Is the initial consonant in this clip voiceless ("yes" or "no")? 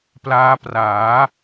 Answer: yes